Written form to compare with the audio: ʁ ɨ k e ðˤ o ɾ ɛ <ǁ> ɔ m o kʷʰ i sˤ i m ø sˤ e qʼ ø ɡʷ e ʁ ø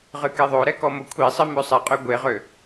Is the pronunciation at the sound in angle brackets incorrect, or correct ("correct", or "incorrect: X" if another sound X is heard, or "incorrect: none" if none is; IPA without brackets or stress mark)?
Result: incorrect: k